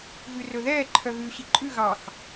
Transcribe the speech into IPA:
ɣ ʉ r ɵ ð ɛː ǃʰ œ ɣ ʉː ɕ i ǃʼ ʉ ɣ ɑ x

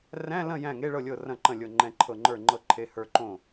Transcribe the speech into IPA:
r æ̃˧˥˧ l ɐ̃˥˩ j æ̃˥˩ ŋ e˧˥˧ ɭ ɤ˥˩ lʲ ɤ˥˩ r ɐ̃˥˩ ǃ ɐ̃˥˩ lʲ ɤ˥˩ ŋ͡ǃ ɛ̃˥˩ ǃʰ ɤ˥˩ ŋ͡ǃ ə˞˥˩ ŋ͡ǃ ɤ˥˩ ǃʰ e˧˥˧ h ə˞˥˩ ǃ õ˥˩

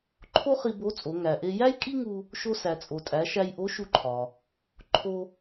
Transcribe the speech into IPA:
ǃʰ o˥ χ i˧ b o˧˥ t͡sʼ o˩˧ ŋ æ˩ ʔ e˧ j æ˥ j kʼ i˥ ŋ u˧ | ʃ o˧ s æ˩ t͡sʼ o˩ tʼ æ˩˧ ʃ æ˧ j ʔ o˧˥ ʃ u˧ ǃʰ ɒ˩ | ǃʰ o˧

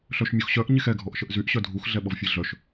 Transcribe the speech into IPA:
ɬ œ ʃ mʲ u x ɕ œ ʔ ɲ e x ɛ ɡʱ ɔ ʔ ʃ ə ʔ z y ʔ ɕ œ dʱ u x ɮ ɛ ɓ ɔ v fʲ e ɮ œ ʃ

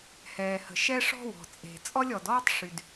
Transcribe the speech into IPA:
h ɛː˩ h ə̤˩ ʃ ɛ˥ ʂ ɔ̤˥ w ɔ̤˩ t͡sʼ e̤˩ t͡sʼ ɔ˥ lʲ ɔ˩ d ɔː˥ tˤ ʂ y˩ d

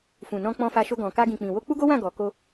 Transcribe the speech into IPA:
f ũ˨ n ɔ̃˧ k͡p ɔ̃˧ f a˧ ʃ o˧ ɡ ɔ̃˨ k a˧ ɡ ĩ˨ k͡p ĩ˨ w o˧ k͡p u˦ ɡ o˦ w ã˦˨ ɡ ɔ˨ k o˧

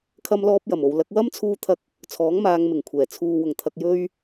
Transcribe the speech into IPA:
kʰ ɐ˧ m l ɔː˧ p̚ j ɐ˨˩ m o˨ w l ɐ˨˥ k̚ w ɐ˥ m t͡sʰ uː˧ t̪ʰ ɐ˧ k̚ | t͡sʰ ɔː˨˥ ŋ m aː˨˧ ŋ m ɪ˨˩ ŋ kʷʰ ɛː˨˩ t͡sʰ uː˨ w ʊ˨˩ ŋ t̪ʰ ɐ˨ k̚ j ɵ˧ ɥ

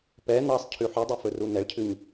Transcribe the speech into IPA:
p ɛ n ɑ sˤ cʰ ʉ ħ ʉ dˤ ɵ f ɵ r u n ɛ ɭ cʰ ʉ ɲ

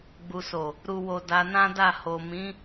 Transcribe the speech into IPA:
ɡ͡b u˨ s o˨ | ɾ u˨ w o˨ d a˧ n ã˦ d a˦˨ h o˨ m ĩ˨˦

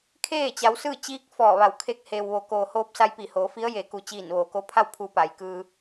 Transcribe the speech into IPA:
kʰ eː˥˨ t͡ɕ a˩˧ w s ɯː˥˨ t͡ɕ iː˧˥ k̚ f ɔː˧˩ ʋ a˧˩ w kʰ e˥˨ k̚ h eː˩ w ʋ o˩˧ k oː˩ h oː˧ p̚ s a˧ j p i˧˩ h oː˩˧ f i˧˥ ə̯ j e˩˧ k u˩ t͡ɕ iː˧˩ n ʋ oː˩ k o˧˥ pʰ a˥˨ w pʰ u˧ p a˩ j k ɯː˧

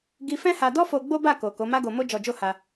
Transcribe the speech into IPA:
ɡ i˧ f ɛ̃˦ h a˧ d ɔ˦ f o˧ ɡ͡b o˦ b a˦˨ k o˨ k o˨˦ m a˦ ɡ o˧ m o˦ d͡ʒ ɔ˧ d͡ʒ o˦ h a˧

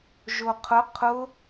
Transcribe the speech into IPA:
ʒ o qʰ ʊ qʰ ʊ

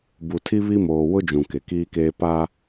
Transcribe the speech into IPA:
b u˨ tʰ i˦ β i˦ m oː˨ w ʊ˦ d͡ʒ ũ˨ k e˨ k iː˦ k eː˦ p a˦

